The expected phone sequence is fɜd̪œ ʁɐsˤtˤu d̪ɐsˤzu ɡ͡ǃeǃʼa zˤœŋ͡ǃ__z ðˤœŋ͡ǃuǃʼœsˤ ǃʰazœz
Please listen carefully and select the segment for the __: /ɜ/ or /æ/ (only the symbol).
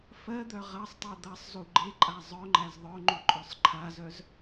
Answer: æ